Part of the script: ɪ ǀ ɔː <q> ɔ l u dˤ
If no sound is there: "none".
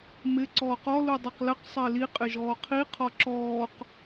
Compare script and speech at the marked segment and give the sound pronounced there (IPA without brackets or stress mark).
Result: q